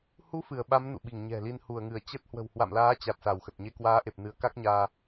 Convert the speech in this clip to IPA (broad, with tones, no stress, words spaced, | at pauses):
hu˨˦ fɨ˧˩ə̯ɓa˨˦m nṵ˧˨ɓi˧˩ŋɲɛ̤˨˩li˧n hu˧˩ə̯ŋɨ˧˩ə̯ t͡ɕə˦˥t̚ hwə̤˨˩whwa̰˧˨mlaː˨˦t͡ɕa˨˩t̚ sa˧˩wxə˨˩t̚ɲe˧ kwaː˨˦ʔe˨˩p̚ nɨ˨˦ə̯ka˦˥k̚ɲaː˧